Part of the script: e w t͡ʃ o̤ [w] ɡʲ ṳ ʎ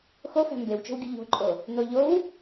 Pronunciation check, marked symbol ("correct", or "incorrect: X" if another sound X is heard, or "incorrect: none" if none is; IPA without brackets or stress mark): correct